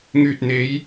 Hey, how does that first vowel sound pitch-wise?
low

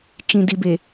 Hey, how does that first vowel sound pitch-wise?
low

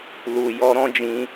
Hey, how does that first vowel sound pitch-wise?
low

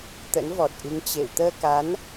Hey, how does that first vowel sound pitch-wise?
rising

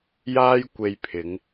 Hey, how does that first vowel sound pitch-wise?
high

